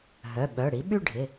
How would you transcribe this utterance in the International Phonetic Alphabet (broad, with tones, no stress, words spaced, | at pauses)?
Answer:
ɦœ˩˧˩ ɓœ˩˧˩ɽi˩˥ ɓy˥˧ɖʱɪ˩˧˩